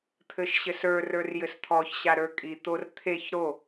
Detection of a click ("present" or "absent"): absent